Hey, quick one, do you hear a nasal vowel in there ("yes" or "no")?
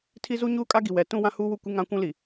yes